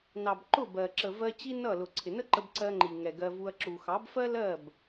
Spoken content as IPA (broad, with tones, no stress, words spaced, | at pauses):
nɑ˨b ǃʊ˦˨bɜ˨ ǁə˨vɜ˧ t͡ɕi˦nʌ˦˨lʊ˨ ǀʰɪ˨nə˦ǃə˧b ǀɜ˧ŋ͡ǃi˨ ŋɛ˨ɡɜ˧vu˧ɐ̯ ǁu˨xɑ˨˦bfɜ˦lɜ˦˨b